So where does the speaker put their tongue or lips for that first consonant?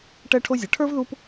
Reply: retroflex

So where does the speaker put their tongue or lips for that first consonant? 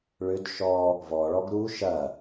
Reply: retroflex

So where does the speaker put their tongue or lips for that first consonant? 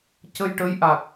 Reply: palate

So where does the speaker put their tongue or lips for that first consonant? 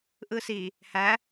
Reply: throat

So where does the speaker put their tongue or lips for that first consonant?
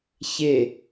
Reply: palate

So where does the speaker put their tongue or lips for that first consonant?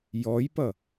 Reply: palate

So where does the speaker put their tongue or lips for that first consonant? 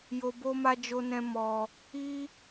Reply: palate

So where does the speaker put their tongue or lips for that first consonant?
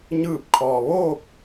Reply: palate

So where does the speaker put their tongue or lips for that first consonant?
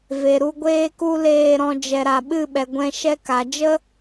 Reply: lips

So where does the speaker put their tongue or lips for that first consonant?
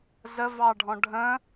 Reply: tongue tip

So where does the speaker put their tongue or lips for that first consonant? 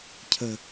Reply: palate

